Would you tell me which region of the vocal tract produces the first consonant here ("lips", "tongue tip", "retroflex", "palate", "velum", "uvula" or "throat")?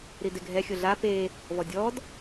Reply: tongue tip